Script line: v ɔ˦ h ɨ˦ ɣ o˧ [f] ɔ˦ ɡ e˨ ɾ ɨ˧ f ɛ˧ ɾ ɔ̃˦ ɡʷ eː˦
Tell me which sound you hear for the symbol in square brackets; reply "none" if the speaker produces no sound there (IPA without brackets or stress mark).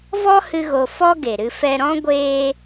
f